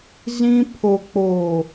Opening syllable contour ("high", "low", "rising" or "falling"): high